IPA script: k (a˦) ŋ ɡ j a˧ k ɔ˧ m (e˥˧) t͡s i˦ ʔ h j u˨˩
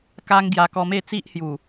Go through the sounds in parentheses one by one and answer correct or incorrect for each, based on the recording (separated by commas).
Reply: correct, correct